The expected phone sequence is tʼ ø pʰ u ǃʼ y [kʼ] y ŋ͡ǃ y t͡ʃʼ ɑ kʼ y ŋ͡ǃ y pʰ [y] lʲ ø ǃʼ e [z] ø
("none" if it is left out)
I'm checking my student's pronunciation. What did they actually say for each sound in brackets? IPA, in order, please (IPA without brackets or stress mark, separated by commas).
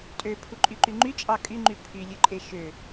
ǃ, y, ʃ